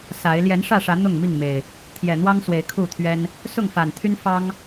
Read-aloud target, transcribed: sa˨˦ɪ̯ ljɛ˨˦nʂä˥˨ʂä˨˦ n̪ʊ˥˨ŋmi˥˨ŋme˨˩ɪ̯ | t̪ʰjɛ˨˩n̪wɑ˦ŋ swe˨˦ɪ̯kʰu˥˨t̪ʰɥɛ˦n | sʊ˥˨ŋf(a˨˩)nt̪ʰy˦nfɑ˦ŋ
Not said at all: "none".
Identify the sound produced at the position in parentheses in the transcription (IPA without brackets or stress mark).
a˨˩